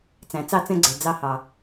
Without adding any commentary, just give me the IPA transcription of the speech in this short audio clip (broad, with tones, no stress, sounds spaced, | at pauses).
t͡s æ̃˨ t͡s ɑ˦ t͡s ɛ̃˦ ɡ͡ǀ ə˞˨ d͡z ɑ˦ h ɑ˨